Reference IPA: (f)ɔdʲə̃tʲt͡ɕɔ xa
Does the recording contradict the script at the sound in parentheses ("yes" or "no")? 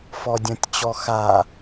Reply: no